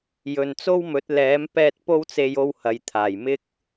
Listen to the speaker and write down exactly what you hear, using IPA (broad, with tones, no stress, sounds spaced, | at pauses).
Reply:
j ɵ˨ n t͡s o˥ w m ɵ˨˥ t̚ l ɛː˨˥ m p ɛː˥ t̚ p o˥ w t͡s e˧ j o˧ w h ɐ˨ j t̪ʰ aː˨˩ j m ɪ˥ k̚